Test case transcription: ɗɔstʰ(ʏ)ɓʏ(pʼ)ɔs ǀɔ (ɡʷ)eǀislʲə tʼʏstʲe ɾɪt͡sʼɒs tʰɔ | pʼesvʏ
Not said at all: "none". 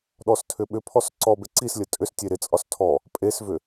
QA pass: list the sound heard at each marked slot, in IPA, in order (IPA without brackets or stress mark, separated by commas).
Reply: ʏ, pʰ, b